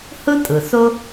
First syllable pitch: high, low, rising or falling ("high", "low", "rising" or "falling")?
high